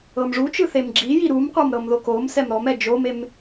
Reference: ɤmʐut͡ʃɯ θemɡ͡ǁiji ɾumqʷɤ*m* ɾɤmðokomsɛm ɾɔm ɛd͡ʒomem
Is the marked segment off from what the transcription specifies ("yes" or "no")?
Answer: no